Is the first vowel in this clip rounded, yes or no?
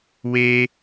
no